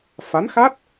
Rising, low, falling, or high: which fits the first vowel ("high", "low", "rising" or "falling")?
rising